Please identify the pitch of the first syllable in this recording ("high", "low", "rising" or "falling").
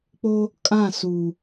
high